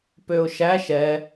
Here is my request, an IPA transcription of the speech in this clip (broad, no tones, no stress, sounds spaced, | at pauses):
p ø ʊ̯ ʃ æ ʃ ɛ